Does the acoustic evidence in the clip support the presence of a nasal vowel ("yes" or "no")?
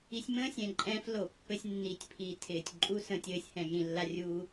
yes